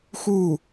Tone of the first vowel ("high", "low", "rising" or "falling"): falling